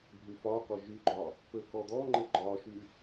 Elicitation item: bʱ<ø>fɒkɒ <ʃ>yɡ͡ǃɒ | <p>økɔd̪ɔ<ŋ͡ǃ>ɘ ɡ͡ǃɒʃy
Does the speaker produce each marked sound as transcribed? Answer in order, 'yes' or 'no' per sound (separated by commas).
no, no, yes, yes